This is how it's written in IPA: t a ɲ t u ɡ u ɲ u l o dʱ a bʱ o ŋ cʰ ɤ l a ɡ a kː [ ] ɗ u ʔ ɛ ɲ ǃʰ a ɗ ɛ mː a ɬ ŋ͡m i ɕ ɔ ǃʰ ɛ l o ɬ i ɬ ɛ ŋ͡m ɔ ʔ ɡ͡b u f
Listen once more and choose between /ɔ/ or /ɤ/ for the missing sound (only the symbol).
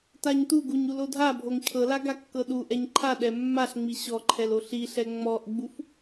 ɤ